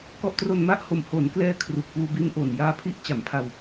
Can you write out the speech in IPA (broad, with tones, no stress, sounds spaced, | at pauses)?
k ɔ˦˥ ʔ t r o˧ n m a˥˩ ʔ h o˨˩ m h o˩˦ n k l ɛː˧ kʰ r u˨˩ k̚ p uː˧ b i˦˥ n ʔ o˨˩ n j aː˧ pʰ i˦˥ ʔ t͡ɕ a˩˦ m pʰ a˧ w